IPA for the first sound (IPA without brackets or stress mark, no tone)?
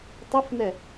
tˤ